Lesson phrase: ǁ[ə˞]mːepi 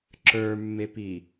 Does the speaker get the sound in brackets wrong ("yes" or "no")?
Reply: no